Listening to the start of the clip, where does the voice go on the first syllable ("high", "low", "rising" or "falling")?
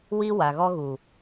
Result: high